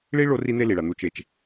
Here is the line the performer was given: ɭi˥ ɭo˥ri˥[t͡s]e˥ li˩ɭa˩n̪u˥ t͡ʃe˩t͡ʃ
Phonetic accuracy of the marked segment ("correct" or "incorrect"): incorrect